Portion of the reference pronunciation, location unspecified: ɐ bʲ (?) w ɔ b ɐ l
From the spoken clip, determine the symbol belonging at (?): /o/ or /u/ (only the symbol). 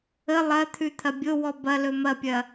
o